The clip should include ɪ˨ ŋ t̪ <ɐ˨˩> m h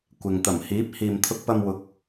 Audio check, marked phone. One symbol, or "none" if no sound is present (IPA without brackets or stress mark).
ɐ˨˩